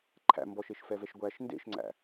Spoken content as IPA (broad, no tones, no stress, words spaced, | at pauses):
ǃʰæ̰ mbɔʃeʃfɛvɛʃ ɡʷæʃ ndḛʃŋ͡ǀæ̰